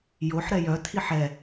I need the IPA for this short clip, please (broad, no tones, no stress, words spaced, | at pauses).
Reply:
joħɾɛ jœtʰiħ ɛ